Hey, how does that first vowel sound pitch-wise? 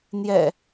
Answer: low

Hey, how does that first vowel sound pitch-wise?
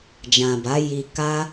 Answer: low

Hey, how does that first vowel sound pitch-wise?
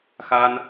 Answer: high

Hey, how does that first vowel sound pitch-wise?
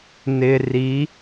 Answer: low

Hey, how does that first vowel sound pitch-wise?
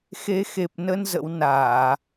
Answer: rising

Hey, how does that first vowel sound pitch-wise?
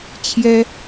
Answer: high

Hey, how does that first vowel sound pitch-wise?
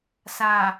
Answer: low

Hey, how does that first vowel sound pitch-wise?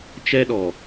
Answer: high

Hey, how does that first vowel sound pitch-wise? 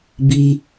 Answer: high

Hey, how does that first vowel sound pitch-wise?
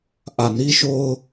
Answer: low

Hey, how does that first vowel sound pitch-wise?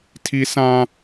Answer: high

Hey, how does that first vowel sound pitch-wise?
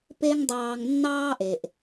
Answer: high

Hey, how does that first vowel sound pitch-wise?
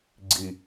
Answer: low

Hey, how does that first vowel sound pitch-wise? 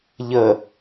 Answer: low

